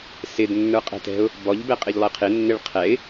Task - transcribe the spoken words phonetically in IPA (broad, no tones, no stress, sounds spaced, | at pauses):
s ɪ d nː ə˞ qʼ ɛ̤ t ɛ̤ ʊ̯ | b ɔ ʎ b ɛ qʼ ɪ ʎ lˠ ɪ qʰ ɪ nː ɪ ɭ qʰ ɛ ɪ̯